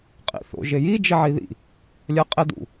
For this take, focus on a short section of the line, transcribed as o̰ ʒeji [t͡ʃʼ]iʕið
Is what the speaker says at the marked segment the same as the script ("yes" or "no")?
no